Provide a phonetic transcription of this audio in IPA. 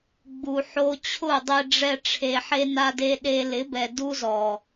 ɡ͡b u˨ ħ o˧ t͡ɕʰ ʊ˦˨ dˤ e˧ ɖ͡ʐ ɛ˧ ʈ͡ʂʰ e˨ ħ e˧ n a˧ d e˧ ɗ e˧ l ɪ˨˦ b ɛ˨ d u˦ z ɔ˨

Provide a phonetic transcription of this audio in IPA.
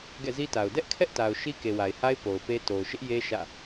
ɡ ɛ̰˦˨ z i˦ t a˨ ʊ̯ d ɛ˦ ʔ kʰ ɛ˦ ʔ t a˨ ʊ̯ ʃ i˦ k e˨ w a˨ ɪ̯ h a˦ ɪ̯ p o˨ ʊ̯ p e˦ t o˨ ʊ̯ ʃ ɪ˦ ʔ j e˦ ʃ ä̰˦˨

